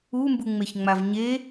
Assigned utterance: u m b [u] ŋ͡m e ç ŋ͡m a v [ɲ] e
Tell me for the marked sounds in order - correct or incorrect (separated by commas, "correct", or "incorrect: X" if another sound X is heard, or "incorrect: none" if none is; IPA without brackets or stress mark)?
correct, correct